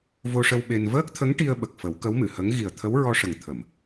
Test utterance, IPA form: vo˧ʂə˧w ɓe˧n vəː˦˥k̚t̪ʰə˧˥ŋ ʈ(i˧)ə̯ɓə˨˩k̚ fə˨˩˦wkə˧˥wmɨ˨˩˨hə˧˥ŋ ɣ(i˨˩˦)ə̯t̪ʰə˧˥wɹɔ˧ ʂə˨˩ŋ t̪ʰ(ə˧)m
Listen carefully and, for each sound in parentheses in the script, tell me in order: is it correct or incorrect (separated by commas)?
correct, incorrect, incorrect